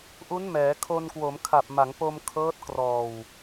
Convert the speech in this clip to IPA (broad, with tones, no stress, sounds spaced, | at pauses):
ʔ u˦˥ n m ɛː˩˦ kʰ o˧ n k w o˩˦ m kʰ a˨˩ p̚ m a˩˦ ŋ p o˧ m kʰ ɤː˦˥ t̚ k r ɔː˨˩ w